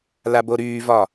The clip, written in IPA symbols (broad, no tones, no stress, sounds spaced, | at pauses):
l a b o ɾ yː v ɒ